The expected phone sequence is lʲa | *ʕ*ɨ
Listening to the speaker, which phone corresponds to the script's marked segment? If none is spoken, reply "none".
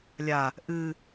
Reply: ʔ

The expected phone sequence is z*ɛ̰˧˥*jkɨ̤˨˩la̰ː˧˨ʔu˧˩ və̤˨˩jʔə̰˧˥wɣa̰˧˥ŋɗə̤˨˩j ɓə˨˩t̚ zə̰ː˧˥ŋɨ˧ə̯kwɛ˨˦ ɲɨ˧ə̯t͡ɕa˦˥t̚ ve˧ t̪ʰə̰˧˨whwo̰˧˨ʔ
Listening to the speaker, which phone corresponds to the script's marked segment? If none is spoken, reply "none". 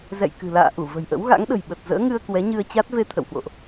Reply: ɛ̰˧˨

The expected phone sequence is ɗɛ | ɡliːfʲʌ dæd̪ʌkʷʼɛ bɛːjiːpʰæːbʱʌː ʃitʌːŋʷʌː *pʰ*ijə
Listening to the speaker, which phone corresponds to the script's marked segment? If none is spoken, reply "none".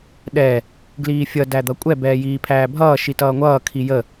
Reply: kʰ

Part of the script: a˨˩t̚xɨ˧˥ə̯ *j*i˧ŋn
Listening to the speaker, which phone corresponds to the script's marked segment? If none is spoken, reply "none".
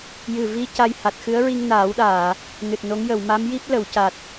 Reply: ɹ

